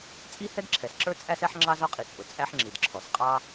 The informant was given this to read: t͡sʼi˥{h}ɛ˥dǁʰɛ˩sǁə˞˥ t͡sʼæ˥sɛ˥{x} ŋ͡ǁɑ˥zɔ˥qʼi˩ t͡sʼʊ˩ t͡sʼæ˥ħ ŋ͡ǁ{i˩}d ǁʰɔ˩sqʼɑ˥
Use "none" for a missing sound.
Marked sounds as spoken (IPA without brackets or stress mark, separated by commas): h, ħ, i˩